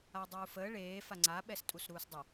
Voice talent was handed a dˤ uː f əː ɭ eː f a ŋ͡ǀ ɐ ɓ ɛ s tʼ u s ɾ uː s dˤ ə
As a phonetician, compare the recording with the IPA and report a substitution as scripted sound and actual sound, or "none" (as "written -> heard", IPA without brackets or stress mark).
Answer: ɐ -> a